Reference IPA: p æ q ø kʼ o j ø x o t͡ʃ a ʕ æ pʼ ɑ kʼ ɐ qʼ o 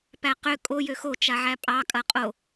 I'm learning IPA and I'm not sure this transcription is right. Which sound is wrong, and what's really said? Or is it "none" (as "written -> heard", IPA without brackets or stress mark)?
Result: none